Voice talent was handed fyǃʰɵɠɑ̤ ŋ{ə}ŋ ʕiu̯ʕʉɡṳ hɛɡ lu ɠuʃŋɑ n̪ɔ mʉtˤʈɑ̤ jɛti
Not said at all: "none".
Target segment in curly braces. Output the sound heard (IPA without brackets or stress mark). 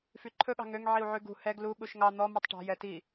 ø